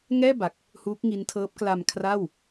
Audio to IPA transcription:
ŋ ɛː˥˩ b a˨˩ k̚ | h uː˦˥ k̚ ŋ i˦˥ n tʰ ɤː˦˥ p̚ k l a˧ m kʰ r a˥˩ w

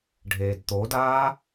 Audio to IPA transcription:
ɖʱ eː d t̪ o d aː

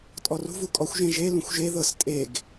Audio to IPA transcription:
tʼ ɔ r ṳ v u kʼ ɔ xʷ ʒ ẽ ʒ e l ũ xʷ ʒ e ð ɤ s tʼ e ɡ

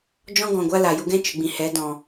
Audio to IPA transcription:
d͡ʒ ɔ̃˦ ɡ ɔ̃˨ ɡʷ a˦ l a˨ j u˧ ɡ ɛ̃˦ t͡ʃ ɨ˨ ɡ͡b ĩ˨ h ɛ˨˦ d ɔ̃˨

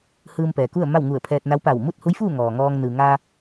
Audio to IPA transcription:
h ɯː˧ m p ɛː˩ k u˥˨ ə̯ m a˥˨ w ŋ u˧˩ ə̯ pʰ ɛː˧ t̚ n a˧˥ w p a˧˩ w m u˥˨ t̚ h u˧˥ j f uː˥˨ ŋ ɔː˩ ŋ ɔː˧ ŋ n ɯː˩ ŋ aː˧

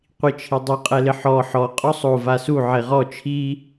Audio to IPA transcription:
qʷ i t͡ʃʰ i dˤ u qʼ ɛ l ɪ ħ ɔ ħ ɔ qʼ ɔ sˤ o v a s u ʕ e ʁ ɔ t͡ʃʰ i

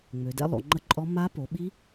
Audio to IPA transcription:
ŋ͡m ø˩˧ d ɛ̰˦˥ lˠ o̰˩˧ ŋ͡ǃ ə˦˥ ǃʼ ɔ˦˥ m a˦˥ p o˩˧ ɓ i˦˥

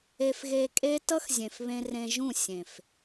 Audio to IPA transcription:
e˧ f ɣ e˧ kʼ e˦ t ʌ˦ x zʲ ẽ˨ f β ẽ˧ r ẽ˧ ʒ ũ˦˨ sʲ ẽ˨ f

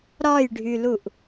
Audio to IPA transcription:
ɾ ɒ j ɖʱ y l u ʔ

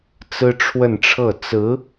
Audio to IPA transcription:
t͡s ɹ̩˥ ʈ͡ʂʰ w ə˥˧ n ʈ͡ʂʰ ɤ˥˩ t͡s ɹ̩˧˥

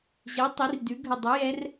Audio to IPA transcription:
ʑ ɜ˨˥ tˤ i˨˥ r d ʉ˨˥ ɡʱ ə˦˨ dˤ ɨ˨˥ j ɛ˦˥ r

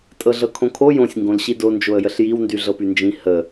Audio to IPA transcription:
tʼ ɤ ɮ ɤ kʰ õ kʰ o j õ sʲ ŋ ɡ õ l ɕ i d o n d͡ʒ o ə̯ j ə ɬ j i w n d y ɮ ɤ p y n d͡ʒ ĩ h ə

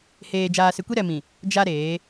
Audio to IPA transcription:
h eː˨ d͡ʒ aː˨ s ɪ˨ kʷ i˦ ɾ ɛ˨ m ĩ˨ | d͡ʒ a˦ ɾ eː˨˦

